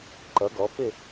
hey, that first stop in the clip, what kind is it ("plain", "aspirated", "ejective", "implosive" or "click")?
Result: click